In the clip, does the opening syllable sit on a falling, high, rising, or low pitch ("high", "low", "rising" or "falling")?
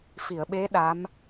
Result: low